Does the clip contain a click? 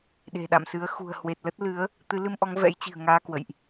no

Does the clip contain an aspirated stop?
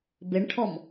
yes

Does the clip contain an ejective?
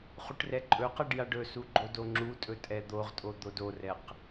yes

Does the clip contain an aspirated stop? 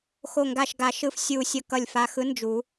no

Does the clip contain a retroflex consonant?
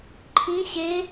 no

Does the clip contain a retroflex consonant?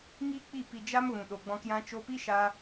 no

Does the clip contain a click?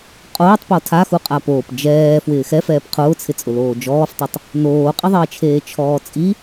no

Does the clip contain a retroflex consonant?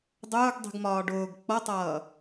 yes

